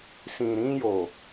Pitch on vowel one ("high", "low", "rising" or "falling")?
low